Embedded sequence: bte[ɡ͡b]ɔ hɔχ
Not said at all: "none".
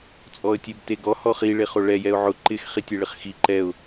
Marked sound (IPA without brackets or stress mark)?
ɡ